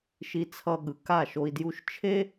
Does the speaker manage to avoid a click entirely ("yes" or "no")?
yes